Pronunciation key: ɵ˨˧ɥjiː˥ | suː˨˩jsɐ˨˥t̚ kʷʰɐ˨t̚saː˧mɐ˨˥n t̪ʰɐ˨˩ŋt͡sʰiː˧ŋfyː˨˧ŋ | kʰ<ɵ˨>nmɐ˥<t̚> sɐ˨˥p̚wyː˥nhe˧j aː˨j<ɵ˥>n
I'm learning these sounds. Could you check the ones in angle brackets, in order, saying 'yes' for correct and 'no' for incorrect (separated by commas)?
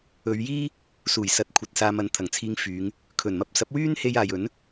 no, no, no